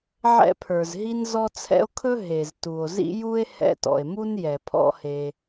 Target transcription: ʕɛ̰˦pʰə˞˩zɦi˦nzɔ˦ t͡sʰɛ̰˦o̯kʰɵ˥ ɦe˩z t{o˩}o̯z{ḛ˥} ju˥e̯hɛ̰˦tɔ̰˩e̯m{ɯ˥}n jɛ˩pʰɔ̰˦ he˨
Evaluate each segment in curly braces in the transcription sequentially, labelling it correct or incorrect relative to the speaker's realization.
incorrect: u˩, incorrect: ḭ˥, incorrect: u˥

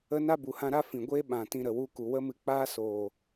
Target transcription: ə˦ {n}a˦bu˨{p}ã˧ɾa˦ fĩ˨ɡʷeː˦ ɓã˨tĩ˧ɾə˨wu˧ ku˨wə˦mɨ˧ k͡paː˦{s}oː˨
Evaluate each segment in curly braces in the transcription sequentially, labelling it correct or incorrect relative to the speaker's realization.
correct, incorrect: h, correct

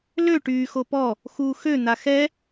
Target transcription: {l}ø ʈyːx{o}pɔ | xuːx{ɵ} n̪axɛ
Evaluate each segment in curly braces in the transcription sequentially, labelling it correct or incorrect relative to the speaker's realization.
correct, correct, incorrect: ø

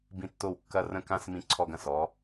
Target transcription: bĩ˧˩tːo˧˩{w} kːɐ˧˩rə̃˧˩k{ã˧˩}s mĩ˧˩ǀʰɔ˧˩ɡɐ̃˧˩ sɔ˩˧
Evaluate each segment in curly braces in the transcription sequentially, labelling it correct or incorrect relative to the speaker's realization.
correct, correct

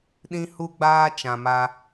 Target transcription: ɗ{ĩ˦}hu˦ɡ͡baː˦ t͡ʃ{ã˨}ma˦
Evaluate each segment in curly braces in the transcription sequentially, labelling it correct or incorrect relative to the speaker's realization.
correct, correct

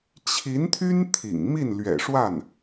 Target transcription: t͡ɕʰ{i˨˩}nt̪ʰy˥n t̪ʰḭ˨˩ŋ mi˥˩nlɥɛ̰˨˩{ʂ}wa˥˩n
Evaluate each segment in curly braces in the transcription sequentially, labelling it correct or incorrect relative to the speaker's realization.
incorrect: i˧˥, correct

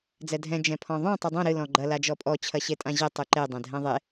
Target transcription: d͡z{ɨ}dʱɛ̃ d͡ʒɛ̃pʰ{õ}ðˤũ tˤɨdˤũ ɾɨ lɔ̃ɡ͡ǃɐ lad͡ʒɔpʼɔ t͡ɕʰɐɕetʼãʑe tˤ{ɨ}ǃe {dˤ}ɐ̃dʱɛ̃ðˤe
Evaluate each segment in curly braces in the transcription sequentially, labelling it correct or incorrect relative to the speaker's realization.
incorrect: ɛ, incorrect: ɔ̃, correct, correct

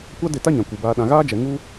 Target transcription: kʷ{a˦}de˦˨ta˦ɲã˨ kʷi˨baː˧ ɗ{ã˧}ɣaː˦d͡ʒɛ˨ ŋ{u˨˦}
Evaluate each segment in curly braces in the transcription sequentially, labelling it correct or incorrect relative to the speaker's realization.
correct, incorrect: ã˨, incorrect: u˧

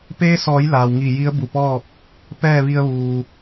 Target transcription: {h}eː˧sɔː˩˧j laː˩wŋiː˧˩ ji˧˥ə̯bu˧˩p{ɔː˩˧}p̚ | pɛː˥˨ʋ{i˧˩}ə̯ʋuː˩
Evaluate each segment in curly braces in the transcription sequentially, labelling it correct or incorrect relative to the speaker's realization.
incorrect: p, incorrect: ɔː˥˨, incorrect: i˧

